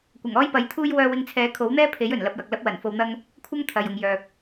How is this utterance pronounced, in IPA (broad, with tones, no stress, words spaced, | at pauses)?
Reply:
kʷɐ˨˩ŋɔː˥jpɐ˨˥jt̪ʰuː˥j wœː˧wɪ˧ŋt͡sʰɛː˨˥ kʰo˨˥wn̪ɛː˥pʰe˨˥jɵ˨˩n lɐ˧p̚jɐ˨k̚lɐ˥p̚ wɐ˨˩nfo˧wn̪ɐ˥ŋ | kʷʰɐ˥ŋ t̪ʰɐ˨jʊ˨ŋjœː˨k̚